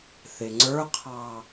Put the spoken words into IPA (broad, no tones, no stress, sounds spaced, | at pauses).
θ ɪ ŋ͡ǀ ə˞ qʰ ɑ